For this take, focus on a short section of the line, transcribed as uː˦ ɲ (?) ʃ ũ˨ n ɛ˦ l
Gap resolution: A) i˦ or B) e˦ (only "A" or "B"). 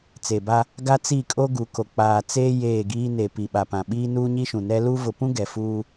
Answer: A